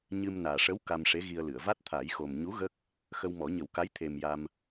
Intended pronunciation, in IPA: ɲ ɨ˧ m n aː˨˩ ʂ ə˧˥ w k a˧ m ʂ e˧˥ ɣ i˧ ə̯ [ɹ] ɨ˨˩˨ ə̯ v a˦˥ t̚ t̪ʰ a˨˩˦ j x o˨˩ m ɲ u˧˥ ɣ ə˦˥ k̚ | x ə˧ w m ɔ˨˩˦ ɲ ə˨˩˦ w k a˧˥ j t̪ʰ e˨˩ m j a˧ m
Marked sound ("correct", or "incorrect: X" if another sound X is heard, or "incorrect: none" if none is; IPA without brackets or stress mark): incorrect: l